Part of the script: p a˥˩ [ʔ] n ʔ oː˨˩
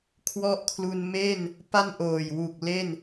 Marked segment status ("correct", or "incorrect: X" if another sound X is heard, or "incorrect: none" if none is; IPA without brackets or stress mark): incorrect: none